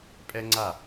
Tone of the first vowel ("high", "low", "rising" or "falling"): high